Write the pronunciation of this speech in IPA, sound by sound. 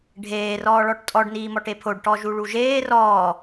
ɖʱ eː r ɔː ɭ ɔ ʈ tʼ ɔ ɖ n iː m ɔ ʈ e pʰ o ɖ ʈ ɔ ʒ u ɭ u ʒ eː r ɔː

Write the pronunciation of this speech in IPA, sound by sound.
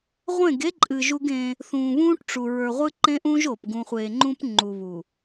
ʁʷ ẽ˦˨ ɡ e˦ ǃʼ ɨ˨ ʒ u˦ ɡ ẽː˦ | θ ũː˨ β ũː˦ ʈ ʈ͡ʂ u˨ ɹ ə˞˨ ʁʷ ɨ˦ ǃ ẽ˦ ʔ ũ˦ ʒ oː˨ p ɡ ũ˨ χʷ e˨ ŋ͡ǃ ũ˦ p ŋ͡ǃ u˨ β u˨

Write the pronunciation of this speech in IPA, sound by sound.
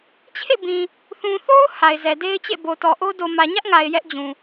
t͡ɕʰ ḛ˦˨ b ĩ˨ | θ ũ˨ θ o˦ ʊ̯ h a˨ ɪ̯ z ɛ˨ d e˦ ɪ̯ t͡ɕ ḛ˦˨ b o˨ t ɔ˨ ʔ o˦ d o˨ m ä˨ ɲ ä˦ ʔ ŋ a˨ ɪ̯ j ɛ˦ ʔ d͡ʑ ũ˨

